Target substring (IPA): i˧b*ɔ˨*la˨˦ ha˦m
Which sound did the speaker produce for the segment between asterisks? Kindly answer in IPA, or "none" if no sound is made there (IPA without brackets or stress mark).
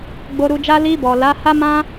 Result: ɔ˨